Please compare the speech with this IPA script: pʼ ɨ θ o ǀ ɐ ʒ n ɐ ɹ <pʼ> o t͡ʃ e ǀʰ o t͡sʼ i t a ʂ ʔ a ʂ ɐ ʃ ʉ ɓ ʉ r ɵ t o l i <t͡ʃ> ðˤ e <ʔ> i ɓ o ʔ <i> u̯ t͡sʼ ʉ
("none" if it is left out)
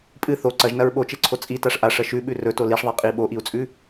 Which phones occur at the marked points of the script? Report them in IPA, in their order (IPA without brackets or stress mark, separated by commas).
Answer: ɓ, ʂ, qʼ, i